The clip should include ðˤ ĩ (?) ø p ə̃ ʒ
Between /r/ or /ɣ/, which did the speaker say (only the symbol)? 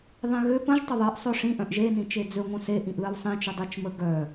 ɣ